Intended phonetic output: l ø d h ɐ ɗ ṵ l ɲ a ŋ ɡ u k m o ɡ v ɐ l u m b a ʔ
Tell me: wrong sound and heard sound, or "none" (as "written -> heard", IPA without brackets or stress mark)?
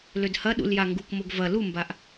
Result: ɲ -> j